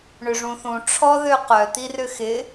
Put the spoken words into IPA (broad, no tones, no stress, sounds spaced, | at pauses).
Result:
ɳ ʏ ʐ ũ θ ũ ʈ͡ʂʰ ɔ ð ø q œ t̪ i r ʏ x ɪ